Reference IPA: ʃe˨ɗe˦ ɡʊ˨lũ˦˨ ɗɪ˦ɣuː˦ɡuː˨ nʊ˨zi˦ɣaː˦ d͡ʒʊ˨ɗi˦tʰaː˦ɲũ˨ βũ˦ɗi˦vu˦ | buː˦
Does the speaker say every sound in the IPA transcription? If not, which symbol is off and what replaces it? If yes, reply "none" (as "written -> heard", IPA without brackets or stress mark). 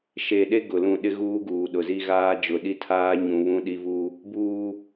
n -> ɗ